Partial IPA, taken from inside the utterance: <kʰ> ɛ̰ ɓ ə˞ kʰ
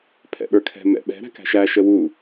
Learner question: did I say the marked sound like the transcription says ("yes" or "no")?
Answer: no